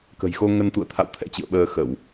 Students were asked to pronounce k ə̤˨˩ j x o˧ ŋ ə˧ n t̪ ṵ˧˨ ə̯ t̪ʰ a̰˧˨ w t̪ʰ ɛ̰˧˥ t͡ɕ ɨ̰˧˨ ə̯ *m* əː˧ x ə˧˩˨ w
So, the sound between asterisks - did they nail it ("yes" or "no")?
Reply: no